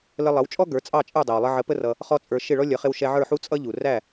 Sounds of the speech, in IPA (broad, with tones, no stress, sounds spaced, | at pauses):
l ə˧ lˠ ʌ˩˥ w t͡ʃʼ ɔ˥ ɡ ə˞˩˥ t͡sʼ ɑ˥˩ t͡ʃʼ ə˞˥˩ dˤ æ˩ w lˠ ə˧ ʕ ə˩˥ p ə˧ r ʌ˩ | χ ɔ˥ t͡sʼ ə˞˧ ʃ ɪ˥˩ ɭ ɔ˥ lʲ ʌ˩˥ χ ɪ˧ w ʃ ɛ˧ ʕ ə˞˥˩ ħ u˥ t͡sʼ ʌ˥ ʎ u˩ r æ˥˩